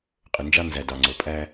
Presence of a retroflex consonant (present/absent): absent